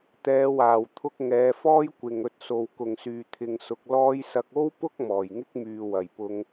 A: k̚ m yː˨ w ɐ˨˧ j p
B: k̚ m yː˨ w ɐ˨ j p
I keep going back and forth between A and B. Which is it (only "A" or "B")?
B